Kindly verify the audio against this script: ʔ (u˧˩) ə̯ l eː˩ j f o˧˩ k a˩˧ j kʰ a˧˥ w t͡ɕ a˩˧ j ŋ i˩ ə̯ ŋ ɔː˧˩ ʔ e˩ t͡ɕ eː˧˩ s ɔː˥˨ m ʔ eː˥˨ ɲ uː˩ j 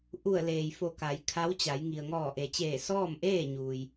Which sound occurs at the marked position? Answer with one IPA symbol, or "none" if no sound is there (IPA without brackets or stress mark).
u˧˩